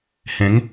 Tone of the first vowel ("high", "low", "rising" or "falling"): rising